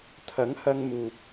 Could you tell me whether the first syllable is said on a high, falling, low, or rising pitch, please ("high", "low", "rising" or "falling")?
rising